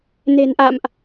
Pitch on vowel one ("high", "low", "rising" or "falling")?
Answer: low